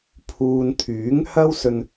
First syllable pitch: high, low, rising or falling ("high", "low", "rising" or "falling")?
low